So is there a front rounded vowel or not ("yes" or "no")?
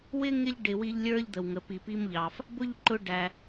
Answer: no